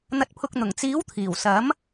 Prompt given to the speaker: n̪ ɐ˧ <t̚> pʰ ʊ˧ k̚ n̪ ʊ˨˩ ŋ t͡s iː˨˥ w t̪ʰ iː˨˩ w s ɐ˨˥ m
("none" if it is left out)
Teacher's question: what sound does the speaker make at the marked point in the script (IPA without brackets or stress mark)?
t̚